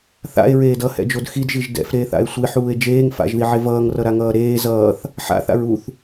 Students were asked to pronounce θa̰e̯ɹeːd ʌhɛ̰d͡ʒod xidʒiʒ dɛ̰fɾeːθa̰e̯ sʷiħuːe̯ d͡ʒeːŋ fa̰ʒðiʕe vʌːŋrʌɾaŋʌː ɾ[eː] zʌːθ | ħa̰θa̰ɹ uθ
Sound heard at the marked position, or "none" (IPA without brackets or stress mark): eː